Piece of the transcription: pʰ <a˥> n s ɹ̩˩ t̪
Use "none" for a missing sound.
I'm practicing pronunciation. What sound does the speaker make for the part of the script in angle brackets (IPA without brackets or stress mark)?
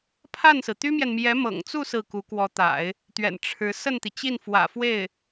a˥˩